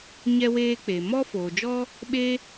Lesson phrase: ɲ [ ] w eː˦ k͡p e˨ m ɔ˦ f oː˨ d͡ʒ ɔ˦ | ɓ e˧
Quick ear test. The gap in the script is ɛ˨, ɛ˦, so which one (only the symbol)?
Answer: ɛ˦